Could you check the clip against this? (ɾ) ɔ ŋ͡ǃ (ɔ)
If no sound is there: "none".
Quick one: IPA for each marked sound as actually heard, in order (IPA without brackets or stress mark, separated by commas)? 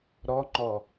ɾ, ɔ